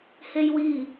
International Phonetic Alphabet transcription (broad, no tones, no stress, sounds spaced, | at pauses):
h e j w i